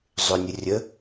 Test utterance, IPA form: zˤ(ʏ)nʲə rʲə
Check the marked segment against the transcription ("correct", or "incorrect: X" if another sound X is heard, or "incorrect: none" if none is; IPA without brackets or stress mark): correct